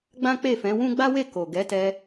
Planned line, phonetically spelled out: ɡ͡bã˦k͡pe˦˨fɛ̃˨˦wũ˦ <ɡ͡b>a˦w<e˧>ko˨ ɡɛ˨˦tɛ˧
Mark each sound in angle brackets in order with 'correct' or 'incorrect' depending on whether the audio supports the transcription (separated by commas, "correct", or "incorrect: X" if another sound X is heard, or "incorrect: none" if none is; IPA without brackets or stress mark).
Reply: correct, incorrect: e˦˨